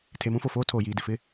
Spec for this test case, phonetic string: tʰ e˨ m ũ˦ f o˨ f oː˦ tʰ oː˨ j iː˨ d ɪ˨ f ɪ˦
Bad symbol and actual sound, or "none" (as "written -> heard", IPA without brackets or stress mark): none